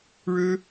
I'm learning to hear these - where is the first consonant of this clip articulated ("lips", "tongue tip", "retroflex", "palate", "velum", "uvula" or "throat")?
retroflex